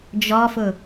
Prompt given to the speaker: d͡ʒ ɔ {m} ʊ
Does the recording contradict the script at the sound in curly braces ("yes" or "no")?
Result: yes